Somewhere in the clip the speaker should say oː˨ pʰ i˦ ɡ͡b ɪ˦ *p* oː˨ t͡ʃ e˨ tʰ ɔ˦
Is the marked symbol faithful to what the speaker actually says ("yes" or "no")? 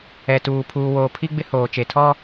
no